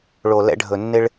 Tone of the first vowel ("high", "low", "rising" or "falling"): low